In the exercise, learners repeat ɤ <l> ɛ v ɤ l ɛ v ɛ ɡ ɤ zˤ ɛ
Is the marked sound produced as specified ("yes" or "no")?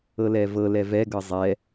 yes